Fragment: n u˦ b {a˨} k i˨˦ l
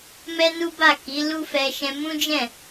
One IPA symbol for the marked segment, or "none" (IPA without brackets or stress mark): a˦˨